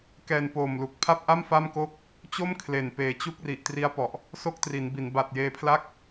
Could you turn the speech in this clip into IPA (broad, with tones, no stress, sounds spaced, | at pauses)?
k ɛː˧ n p oː˨˩ m l u˨˩ k̚ pʰ a˥˩ p̚ ʔ a˥˩ m f a˥˩ m k o˥˩ k̚ | t͡ɕ o˥˩ m kʰ l e˨˩ n p eː˨˩ t͡ɕ u˦˥ k̚ r i˨˩ ʔ t r i˦˥ a̯ p ɔ˨˩ ʔ | s o˦˥ k̚ t r i˩˦ n b i˩˦ n b a˨˩ t̚ j eː˧ pʰ l a˥˩ k̚